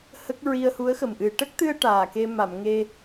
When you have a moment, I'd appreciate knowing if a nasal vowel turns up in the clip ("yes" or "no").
no